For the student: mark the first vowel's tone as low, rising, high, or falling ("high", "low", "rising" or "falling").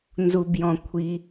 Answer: low